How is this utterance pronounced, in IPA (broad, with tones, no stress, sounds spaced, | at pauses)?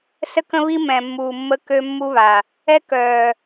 s ə˦ k ə̃˦ β i˦ m ɛ̃˨ mː uː˨ mː ə˦ k ø˦ mː u˦ β a˨ | ɛ˦ k œː˨